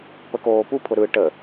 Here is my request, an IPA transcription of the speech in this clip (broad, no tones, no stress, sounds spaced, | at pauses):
p ə k oː p u pʰ ʊ ɾ ɯ ʈ ə